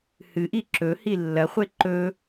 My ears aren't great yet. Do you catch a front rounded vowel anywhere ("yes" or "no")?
no